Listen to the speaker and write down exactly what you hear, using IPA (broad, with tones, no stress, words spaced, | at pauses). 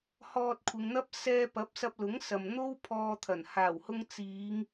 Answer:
hɔː˧t̚ kʷʰɪ˨˧ŋn̪ɐ˥p̚ sɛː˧ pɐ˨˥p̚sɐ˧p̚lʊ˨˥ŋsɐ˨m n̪o˥wpʰɔː˧t̪ʰɐ˨˩n haː˨˩whʊ˧ŋ t͡siː˨˧ŋ